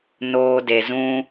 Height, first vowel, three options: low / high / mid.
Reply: mid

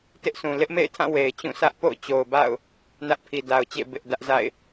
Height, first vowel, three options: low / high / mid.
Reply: high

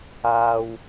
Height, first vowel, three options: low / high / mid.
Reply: low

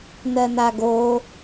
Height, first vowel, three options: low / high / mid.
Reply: mid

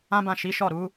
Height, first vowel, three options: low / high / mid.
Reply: low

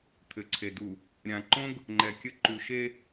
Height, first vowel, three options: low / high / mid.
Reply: mid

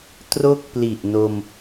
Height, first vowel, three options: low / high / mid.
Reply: mid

